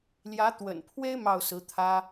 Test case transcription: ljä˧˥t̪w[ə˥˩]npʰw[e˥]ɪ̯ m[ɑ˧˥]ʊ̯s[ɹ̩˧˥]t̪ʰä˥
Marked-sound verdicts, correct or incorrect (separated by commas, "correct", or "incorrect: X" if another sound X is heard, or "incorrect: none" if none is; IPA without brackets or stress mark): incorrect: ə̰˨˩, correct, incorrect: ɑ˥˩, correct